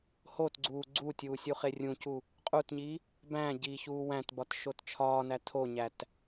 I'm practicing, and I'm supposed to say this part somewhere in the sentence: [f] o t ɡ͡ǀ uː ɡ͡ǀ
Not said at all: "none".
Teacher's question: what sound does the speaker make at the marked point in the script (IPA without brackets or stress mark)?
h